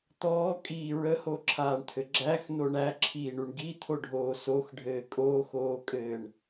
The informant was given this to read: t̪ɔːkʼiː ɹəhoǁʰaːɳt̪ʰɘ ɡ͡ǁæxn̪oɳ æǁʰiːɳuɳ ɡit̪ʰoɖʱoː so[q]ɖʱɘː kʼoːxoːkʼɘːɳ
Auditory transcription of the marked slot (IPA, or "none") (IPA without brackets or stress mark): x